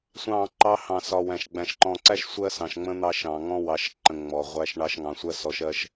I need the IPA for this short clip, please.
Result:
sʷ ɑ̃˦˨ ǃ ɑ˦ h ɑ̃˨ s ɒ˨ w æ̃˨ ʃ ɡ͡b æ̃˨ ʃ ǃ ɔ̃˨ ǀ æ˦ ʃ sʷ ɜ˦ s ɑ̃˨ ʃ ŋ͡m ə̃˦ n̪ ɑ˦ ʃ ɑ̃˨ ŋ ɔ̃˦ w ɑ˨ ʃ ǃ ə̃˨ ŋ͡m ɔ˨ ʁʷ æ˦ ʃ ɳ ɑ˦ ʃ ŋ ɑ̃˨ sʷ ɜ˦ s ɔ˨˦ ʃ ɜ˦ ʃ

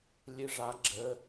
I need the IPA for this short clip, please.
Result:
lʲ ɨ ʐ a ɡ͡ǁ ə

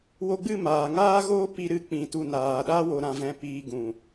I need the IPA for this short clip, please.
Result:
w o˧ ɡ͡b ɨ˦˨ m aː˨ ŋ aː˦ ɣ oː˦ p i˧ ɾ ɨ˧ k͡p ĩ˧ t u˧ n aː˨ ɗ a˦ w o˧ ɾ ã˧ v ɛ̃˧ p iː˧ ɡ ũ˨

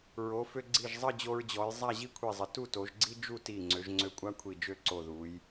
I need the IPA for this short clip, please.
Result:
ɹ o˩˧ f ø˧ ɡ͡ǀ i˧˩ ʒ zˤ ə˥˧ d͡ʑ o˧ ɹ d͡ʑ ɔ˩˧ j zˤ a˥˧ ʑ i˥ kʷʰ i˧˩ zˤ ə˩˧ t u˥˧ t o˩˧ ʒ ɡ͡ǀ i˥ d͡ʒ u˥˧ t i˧˩ ŋ͡ǀ ø˩˧ ʒ ŋ͡ǀ ø˧ kʷʼ a˥ kʷʰ i˧˩ d͡ʒ ø˥˧ ǀ o˧˩ ð u˩˧ j

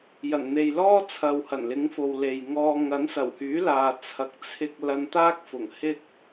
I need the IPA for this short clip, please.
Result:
j ɐ˨˩ n n̪ e˨ j l ɔː˥ t͡sʰ ɐ˨ w h ɐ˨˩ n l ɪ˨˥ ŋ f o˨ w l e˨ j ŋ ɔː˧ ŋ ɐ˨˥ n s ɐ˨˩ w h yː˨˥ l aː˨ t͡sʰ ɐ˨ k̚ t͡sʰ ɪ˧ k̚ l ɐ˧ n t̪ aː˥ k̚ f ʊ˨˩ ŋ h ɪ˥ k̚

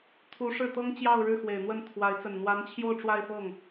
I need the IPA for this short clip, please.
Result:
t̪ʰ u˧˥ ʂ ɻ̩˥˩ t̪ ɤ˥ ŋ t͡ɕ j ɑ˥˧ ʊ̯ ɻ ɻ̩˥˩ x w e˨˩ ɪ̯ n̪ w ə˥˩ n t̪ʰ w a˧˥ ɪ̯ t͡s ə˨˩ n n̪ w a˧˥ n t͡ɕʰ j o˥˧ ʊ̯ ʈ͡ʂ w a˥˧ ɪ̯ f ɤ˥˩ ŋ

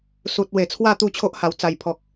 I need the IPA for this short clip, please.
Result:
s u˨ t̚ w e˨˩ t͡sʰ w a˥˧ t̪ u˥˧ t͡ɕʰ o˦ ʔ h a˨˩ w t͡s a˨˩ j pʰ ɔ˨ k̚

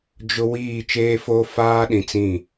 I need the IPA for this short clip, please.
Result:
d͡ʒ ʊ˦ w iː˦˨ t͡ʃ eː˦ f oː˦ f aː˦ ɗ ĩ˨ t͡s ĩ˦˨

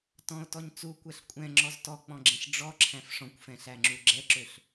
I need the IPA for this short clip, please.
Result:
t ɔ̃ o̯ t ɔ ɲ t͡s u kʷ ɛ ɬ kʷʼ ɛ̃ ŋ͡ǁ ɔ z t ɔ k͡p ɔ̃ ɡ͡ǁ ɛ̃ ɬ ɖ͡ʐ ɔ ǁʰ æ̃ f ʂ ɔ̃ kʷ f ɛ̃ ɬ æ ŋ͡ǁ u ɡ͡ǁ ɛ ǁ ø ɬ

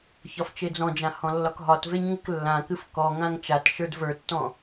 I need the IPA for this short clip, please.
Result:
ç ɒ f t͡ʃ e d͡z ɔ̃ d͡ʒ ã h ɔ̃ lː ɒ k ɦ ɒ t v e ɲ ŋ ɨ k lː ã k ɨ f k ɔ ŋ ã ŋ t͡ʃ a t ʃ ə˞ d v ə˞ tː ɔ̃

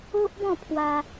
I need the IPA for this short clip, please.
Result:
o˦ ʔ b ɔ̃˥˧ pʰ w a˧

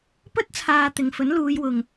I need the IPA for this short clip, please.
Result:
p ɵ˥ t̚ t͡sʰ aː˨ t̪ ɪ˨˩ ŋ f ɵ˨˥ n l uː˨˧ j w ʊ˨ ŋ

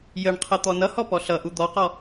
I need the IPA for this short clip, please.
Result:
j ə ɳ qʰ ə t̪ ɔ n ʌ h ɔ p ɔ ɬ ʌ ʔ u d̪ ɔ q ɔ

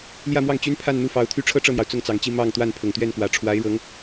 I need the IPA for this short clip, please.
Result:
l j ä˥˧ m w ɑ˥˩ ŋ t͡ɕ y˥ n pʰ a˥˧ n n̪ u˥˩ f ɑ˧˥ ʊ̯ t̪ʰ y˥ ʈ͡ʂʰ ɤ˥˧ ʈ͡ʂ ɤ˥˩ n̪ j ɑ˩ ʊ̯ t͡s ʊ˥˩ ŋ t͡s ɑ˨˩ ŋ t͡ɕ i˥˧ m ɑ˥˧ ŋ t̪ w a˥˩ n pʰ ʊ˨˩ ŋ t̪ ɥ ɛ˥˩ n k w ä˨˩ ʈ͡ʂʰ w a˧˥ ɪ̯ ɻ ɤ˧˥ ŋ

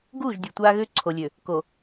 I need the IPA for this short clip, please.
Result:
ɡ uː˦˨ ʒ dʲ u˨ tʷ aː˦ ɣ ʏː˦ ǀʰ o˨ lʲ ø˨ | k o˨

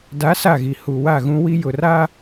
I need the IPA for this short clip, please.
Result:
d a˨˦ s a˦˨ ɣ i˨ h u˨ w a˦˨ ɣ ũ˦ w i˦ j ʊ˨ r a˦

